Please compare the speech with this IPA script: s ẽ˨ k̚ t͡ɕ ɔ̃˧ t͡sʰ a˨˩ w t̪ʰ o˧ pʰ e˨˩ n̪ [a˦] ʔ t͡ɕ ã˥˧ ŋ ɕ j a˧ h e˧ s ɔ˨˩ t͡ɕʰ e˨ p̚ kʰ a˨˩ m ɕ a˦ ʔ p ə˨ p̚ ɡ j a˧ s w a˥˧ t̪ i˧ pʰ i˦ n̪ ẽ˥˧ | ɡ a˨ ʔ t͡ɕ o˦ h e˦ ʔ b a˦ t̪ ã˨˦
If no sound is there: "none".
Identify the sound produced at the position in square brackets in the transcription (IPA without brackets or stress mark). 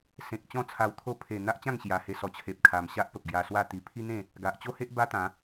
a˦